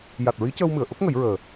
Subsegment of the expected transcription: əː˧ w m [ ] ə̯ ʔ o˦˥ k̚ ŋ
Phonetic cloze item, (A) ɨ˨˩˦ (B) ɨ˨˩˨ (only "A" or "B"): B